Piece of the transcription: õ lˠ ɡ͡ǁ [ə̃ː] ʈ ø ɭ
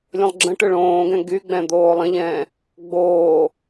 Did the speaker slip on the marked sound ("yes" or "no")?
yes